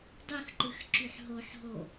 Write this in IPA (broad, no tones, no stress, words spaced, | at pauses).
dˤɯxǃɯx ǁyħɦoħɦo